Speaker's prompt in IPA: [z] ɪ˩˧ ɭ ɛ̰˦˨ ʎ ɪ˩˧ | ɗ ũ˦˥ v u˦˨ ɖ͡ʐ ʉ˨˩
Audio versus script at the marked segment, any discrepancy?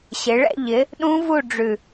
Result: yes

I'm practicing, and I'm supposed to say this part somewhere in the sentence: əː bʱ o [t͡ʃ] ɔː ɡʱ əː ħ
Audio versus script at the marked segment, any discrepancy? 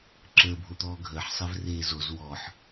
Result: yes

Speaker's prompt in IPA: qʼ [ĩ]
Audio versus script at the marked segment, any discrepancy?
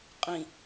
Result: no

